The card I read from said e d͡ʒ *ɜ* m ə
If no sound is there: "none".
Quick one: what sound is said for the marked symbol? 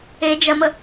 ɜ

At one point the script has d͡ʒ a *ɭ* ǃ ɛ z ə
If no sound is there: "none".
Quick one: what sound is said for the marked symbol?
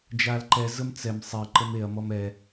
l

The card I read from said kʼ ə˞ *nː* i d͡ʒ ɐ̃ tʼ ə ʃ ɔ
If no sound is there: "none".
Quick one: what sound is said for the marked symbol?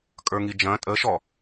ŋ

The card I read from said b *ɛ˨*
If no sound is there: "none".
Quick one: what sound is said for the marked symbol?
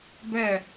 ɛ˦˨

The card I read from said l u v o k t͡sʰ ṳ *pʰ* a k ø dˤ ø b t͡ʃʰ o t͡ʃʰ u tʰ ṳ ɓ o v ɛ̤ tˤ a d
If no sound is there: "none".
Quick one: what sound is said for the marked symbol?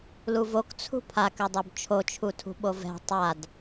pʰ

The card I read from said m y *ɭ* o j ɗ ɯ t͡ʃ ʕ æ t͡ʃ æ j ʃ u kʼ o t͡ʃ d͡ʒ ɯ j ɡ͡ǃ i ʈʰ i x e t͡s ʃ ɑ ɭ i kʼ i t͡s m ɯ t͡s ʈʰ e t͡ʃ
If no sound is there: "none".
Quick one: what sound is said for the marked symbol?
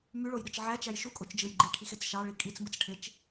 ɭ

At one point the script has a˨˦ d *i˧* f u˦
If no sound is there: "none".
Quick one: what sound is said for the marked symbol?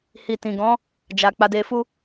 e˧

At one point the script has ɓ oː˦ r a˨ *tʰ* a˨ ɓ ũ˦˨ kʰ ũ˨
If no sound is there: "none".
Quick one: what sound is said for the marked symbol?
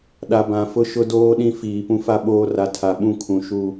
tʰ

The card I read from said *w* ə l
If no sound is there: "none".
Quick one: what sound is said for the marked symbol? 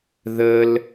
ð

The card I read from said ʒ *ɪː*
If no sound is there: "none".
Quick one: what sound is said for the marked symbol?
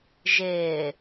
ɪː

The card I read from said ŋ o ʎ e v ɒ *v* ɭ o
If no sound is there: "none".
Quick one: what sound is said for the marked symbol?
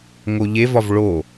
v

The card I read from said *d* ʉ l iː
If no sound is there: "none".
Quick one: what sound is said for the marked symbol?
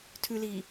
tʰ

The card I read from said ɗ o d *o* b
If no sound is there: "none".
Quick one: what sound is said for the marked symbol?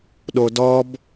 ɔ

